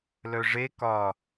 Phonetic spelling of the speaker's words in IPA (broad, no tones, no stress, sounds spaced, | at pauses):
l œ ʐ e k ɒ